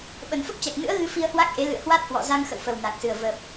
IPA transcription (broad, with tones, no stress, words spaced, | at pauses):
ɓə˨˩nfə˦˥p̚t͡ɕa˨˩k̚nɨ̰˧˥ə̯ ɣɨ˧fi˧ə̯ hwa˦˥k̚ʔe˨˦ lɨ̰˧˨ə̯hwa˦˥t̚hwɔ̰˧˨ za˧ŋxə̰˧˨wfə˨˩w na˨˩k̚sɨ˨˩ə̯ və˨˩p̚